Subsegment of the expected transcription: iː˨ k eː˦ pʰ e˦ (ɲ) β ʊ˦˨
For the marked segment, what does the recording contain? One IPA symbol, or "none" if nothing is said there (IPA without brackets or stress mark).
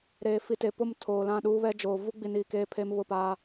m